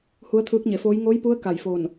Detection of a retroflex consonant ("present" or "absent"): absent